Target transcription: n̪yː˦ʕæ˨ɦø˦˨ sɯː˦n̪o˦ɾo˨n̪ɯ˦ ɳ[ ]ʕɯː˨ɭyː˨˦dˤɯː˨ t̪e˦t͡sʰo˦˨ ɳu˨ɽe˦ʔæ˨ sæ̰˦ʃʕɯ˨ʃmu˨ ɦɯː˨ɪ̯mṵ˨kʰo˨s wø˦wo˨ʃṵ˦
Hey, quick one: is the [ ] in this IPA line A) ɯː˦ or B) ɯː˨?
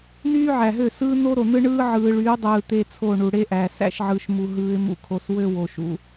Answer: A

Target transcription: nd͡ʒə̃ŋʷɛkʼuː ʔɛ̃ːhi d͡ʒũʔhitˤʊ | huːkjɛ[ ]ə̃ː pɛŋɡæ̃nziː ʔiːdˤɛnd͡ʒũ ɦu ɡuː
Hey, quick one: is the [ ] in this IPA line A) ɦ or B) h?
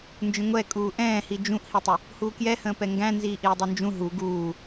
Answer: B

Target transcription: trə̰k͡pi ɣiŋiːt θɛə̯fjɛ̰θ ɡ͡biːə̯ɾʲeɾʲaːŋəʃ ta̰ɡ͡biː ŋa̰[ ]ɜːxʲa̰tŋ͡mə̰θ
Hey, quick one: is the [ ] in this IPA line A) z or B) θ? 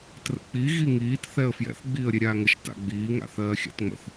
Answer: B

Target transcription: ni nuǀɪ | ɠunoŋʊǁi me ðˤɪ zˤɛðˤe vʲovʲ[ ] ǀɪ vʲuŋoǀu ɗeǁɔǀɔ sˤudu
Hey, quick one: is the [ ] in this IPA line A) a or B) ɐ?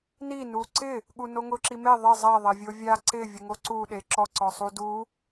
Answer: A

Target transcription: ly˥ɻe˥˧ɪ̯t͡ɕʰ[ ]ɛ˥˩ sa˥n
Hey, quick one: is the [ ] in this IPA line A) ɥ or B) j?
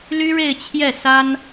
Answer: B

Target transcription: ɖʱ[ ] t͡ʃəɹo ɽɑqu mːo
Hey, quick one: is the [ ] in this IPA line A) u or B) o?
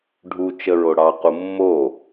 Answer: A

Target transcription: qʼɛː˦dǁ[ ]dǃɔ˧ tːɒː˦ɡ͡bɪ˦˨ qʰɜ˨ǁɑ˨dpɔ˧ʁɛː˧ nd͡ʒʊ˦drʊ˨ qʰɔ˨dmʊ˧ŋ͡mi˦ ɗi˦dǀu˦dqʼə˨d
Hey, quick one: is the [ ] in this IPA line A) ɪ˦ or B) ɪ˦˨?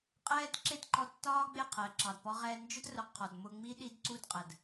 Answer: A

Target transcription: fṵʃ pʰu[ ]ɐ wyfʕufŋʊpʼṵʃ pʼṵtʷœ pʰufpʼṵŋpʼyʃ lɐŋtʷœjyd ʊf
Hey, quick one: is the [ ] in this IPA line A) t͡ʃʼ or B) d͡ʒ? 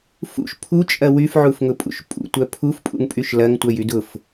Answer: A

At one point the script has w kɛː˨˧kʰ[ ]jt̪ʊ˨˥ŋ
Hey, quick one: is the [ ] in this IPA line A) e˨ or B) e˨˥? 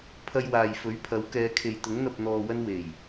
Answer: A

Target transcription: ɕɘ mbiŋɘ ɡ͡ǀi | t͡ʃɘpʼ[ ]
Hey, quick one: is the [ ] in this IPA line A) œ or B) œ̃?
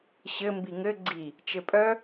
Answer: A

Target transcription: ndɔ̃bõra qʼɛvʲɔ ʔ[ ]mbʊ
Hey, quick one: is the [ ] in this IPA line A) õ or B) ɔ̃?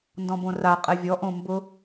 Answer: A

